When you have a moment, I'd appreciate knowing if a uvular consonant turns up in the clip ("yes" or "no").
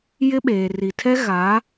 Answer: no